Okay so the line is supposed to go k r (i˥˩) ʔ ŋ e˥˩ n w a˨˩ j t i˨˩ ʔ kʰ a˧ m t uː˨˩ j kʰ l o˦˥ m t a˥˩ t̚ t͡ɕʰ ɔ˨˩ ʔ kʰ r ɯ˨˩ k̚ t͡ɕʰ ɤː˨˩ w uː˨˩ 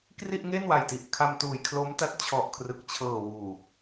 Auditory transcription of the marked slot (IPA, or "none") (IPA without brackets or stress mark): i˥˩